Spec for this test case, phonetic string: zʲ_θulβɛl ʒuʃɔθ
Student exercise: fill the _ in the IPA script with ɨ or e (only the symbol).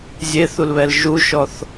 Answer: e